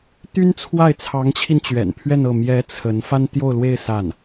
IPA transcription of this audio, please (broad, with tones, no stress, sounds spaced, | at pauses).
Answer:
t̪ y˥ n t͡sʰ w a˥˩ ɪ̯ t͡sʰ ɑ˧˥ ŋ t͡ɕʰ i˧ n t͡ɕ ɥ ɛ̰˨˩ n pʰ ɥ ɛ˥˧ n ɤ˥˩ m j ɛ˧˥ t͡sʰ ə˧˥ n f a˥ n t̪ j o˥˧ ʊ̯ l w e˥˧ ɪ̯ s a˥˩ n